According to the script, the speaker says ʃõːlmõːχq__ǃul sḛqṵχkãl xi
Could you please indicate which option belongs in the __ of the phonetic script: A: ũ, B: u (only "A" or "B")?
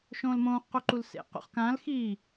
B